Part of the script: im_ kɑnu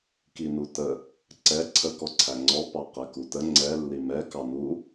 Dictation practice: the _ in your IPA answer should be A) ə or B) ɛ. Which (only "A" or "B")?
B